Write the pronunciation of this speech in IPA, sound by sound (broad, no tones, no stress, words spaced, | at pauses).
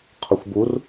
qʰəxʷbur